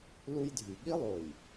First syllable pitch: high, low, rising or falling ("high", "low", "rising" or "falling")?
high